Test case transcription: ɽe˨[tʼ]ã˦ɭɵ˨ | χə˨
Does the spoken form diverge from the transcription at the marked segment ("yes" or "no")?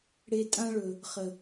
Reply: no